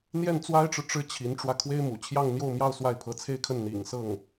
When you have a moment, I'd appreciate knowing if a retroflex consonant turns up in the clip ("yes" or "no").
yes